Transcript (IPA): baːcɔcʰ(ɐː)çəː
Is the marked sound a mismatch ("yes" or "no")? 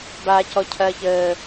no